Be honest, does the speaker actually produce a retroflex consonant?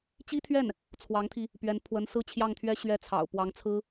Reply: no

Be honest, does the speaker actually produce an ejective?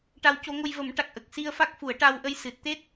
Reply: no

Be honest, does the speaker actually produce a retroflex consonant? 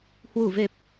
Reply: no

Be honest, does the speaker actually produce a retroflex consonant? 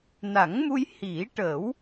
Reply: yes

